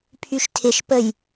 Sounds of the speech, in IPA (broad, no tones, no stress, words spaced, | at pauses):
pʰyʃtʰɪʃpəj